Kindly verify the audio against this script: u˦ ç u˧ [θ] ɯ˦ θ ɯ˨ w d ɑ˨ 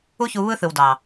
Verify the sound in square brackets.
incorrect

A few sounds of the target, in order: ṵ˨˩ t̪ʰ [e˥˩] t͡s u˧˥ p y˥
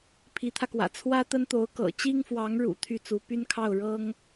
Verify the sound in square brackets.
incorrect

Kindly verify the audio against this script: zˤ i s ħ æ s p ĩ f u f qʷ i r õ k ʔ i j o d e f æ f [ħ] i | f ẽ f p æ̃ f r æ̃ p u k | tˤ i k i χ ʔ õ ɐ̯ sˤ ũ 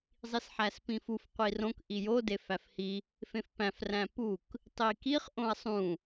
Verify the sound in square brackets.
incorrect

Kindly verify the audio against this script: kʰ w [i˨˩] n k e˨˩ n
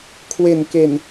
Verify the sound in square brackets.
incorrect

